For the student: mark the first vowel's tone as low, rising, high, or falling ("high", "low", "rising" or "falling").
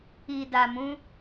low